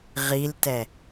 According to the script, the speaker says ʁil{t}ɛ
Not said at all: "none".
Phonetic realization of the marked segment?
t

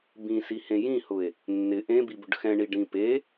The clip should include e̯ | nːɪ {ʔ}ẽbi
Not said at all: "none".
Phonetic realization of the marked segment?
ʔ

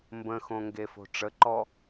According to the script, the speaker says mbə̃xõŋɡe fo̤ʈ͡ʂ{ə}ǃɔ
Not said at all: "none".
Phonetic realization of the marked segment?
ə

